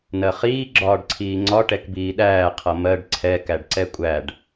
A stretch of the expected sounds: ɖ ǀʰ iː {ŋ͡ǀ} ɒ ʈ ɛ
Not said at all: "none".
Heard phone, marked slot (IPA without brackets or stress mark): ŋ͡ǀ